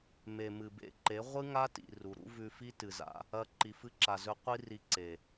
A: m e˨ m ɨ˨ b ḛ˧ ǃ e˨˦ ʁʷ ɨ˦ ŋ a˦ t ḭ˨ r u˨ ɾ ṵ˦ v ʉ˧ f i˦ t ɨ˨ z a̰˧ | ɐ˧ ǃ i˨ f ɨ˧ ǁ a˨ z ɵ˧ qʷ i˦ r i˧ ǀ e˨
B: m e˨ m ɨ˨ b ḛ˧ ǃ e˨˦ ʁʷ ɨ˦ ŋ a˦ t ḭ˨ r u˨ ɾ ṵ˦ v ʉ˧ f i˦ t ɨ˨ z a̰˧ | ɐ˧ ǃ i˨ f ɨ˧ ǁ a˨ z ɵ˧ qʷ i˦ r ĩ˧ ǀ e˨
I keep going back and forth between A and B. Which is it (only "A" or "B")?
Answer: A